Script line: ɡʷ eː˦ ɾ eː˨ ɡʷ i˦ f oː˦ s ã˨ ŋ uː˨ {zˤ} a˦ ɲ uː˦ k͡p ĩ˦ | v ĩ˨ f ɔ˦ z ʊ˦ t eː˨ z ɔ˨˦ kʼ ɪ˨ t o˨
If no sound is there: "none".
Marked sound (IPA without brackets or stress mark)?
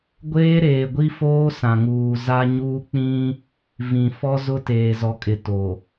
z